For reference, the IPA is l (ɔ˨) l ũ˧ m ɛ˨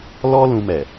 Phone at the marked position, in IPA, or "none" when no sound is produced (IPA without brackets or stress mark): ɔ˦